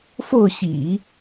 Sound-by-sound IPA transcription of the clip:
fo˥˩ʊ̯ɕḭ˨˩˦

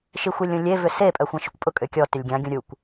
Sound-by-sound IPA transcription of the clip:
ʃixʷelʲõlʲe vʏse pʼœxʷãʃykʷpʼʊ kʼʏkʲɔ tʏlʲɡʲã ɡʲũɾʲukʷ

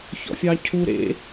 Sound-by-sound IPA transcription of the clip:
çɔ̰fʲɑcʰu ɾḛ

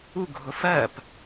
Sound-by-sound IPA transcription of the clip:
uɡʱʊ fɜp

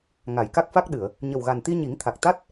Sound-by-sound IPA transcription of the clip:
ŋa˨˩˨jka˦˥k̚fa˦˥k̚ɗɨ˨˩˨ə̯ | ɲə˨˩wɣa˨˩nt̪i˧ ɲi˨˩˦ŋ t̪ʰa˨˩k̚t̪a˦˥t̚

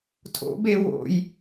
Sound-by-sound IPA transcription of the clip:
tʰo̰be wo̰j

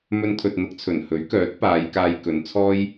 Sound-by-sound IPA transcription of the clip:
mɵ˧nt̪ʰɵ˨t̚n̪ʊ˨˥k̚t͡sʰɵ˨˩n hɵ˨˥ɥkœː˨˥t̚paː˨˧j kaː˧jkɵ˨˧nt͡sʰɔː˥j

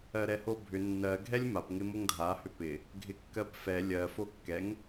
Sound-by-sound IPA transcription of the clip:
ɜɾɛhobʱʏ nːɜ ɡʱɛlʲmap ŋɪmoŋdʱa hʏpɪ | ɡʱɪkːɜpfɛ lʲɜ fokːɛŋ

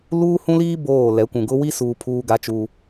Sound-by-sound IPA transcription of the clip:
luː˦hũ˦liː˦ boː˦˨ lɛ˨˦kʷũ˨ɡʊ˦ wi˦suː˨ pʰuː˦ɡa˦t͡ʃuː˦

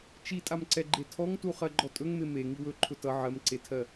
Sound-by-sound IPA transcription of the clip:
t͡ʃitʼamǀɛɡ͡ǃe tʰɔŋtu χɜɡ͡ǃɔtʼɵŋme me ŋiwɵǃʰʊ tʌ ʕɜmǀetʰɜ

